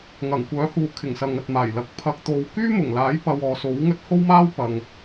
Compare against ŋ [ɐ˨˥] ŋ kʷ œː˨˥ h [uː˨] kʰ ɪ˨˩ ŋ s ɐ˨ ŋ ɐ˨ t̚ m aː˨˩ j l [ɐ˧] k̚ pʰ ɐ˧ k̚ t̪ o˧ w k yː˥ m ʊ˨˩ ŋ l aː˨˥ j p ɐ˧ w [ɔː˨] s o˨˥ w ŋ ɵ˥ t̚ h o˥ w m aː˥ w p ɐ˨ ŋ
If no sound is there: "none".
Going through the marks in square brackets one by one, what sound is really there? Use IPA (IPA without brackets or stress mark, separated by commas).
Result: ɐ˨˩, uː˨, ɐ˨˥, ɔː˨